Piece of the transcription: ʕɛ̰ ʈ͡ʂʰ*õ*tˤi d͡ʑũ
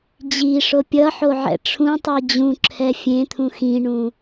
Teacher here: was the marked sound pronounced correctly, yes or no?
no